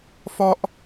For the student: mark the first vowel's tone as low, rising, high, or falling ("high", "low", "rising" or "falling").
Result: high